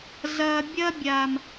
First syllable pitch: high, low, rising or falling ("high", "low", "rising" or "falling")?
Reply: low